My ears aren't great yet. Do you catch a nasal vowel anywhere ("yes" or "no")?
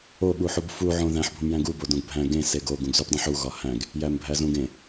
yes